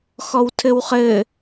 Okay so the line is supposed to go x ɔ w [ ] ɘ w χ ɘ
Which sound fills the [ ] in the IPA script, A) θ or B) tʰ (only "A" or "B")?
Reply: B